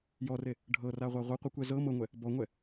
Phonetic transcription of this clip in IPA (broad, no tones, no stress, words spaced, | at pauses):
jɔre | ɖʱɤraʁʷa ʁʷɤqʷɯkʷɛ zɤ mɤŋʷɛ | bɔŋʷɛ